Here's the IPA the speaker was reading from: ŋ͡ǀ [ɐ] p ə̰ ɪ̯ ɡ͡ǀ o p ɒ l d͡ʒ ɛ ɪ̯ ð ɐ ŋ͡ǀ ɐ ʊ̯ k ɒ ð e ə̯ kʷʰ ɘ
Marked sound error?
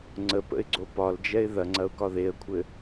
yes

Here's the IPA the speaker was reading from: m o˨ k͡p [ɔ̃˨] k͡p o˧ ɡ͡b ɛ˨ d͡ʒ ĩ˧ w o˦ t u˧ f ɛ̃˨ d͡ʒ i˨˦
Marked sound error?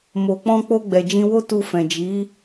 yes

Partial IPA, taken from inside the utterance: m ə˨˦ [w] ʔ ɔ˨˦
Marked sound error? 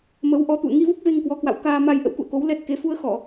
no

